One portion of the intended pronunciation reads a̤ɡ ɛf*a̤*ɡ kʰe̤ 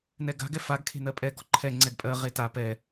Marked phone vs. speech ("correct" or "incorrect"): incorrect